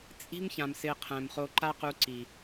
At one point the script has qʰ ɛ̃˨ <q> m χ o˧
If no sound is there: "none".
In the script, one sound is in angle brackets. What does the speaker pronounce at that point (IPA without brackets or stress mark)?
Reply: none